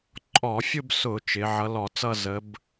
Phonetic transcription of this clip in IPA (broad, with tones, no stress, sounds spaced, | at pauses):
ǃʼ ɔ˧˩˧ fʲ ʊ˥˧ b s ʊ˧˩˧ t͡ʃ ɪ˨˦ ʕ ʌ˨˦ l ɔ˧˩˧ t͡s ʌ˥˧ z ə˨˦ b